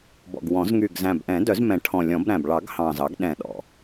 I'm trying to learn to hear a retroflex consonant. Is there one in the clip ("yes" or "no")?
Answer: yes